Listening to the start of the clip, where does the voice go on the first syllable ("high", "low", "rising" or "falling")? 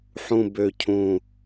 low